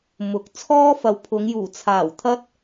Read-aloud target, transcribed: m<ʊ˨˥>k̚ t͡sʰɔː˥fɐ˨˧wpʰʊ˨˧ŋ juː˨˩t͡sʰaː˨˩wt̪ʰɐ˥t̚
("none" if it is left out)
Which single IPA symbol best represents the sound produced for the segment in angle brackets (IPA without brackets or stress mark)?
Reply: ʊ˨˥